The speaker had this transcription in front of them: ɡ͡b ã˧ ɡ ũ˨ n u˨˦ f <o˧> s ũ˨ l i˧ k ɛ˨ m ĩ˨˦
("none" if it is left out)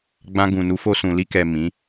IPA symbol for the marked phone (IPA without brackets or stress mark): o˧